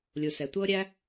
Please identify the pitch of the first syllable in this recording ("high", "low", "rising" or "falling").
low